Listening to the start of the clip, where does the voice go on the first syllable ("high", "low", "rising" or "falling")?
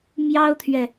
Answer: high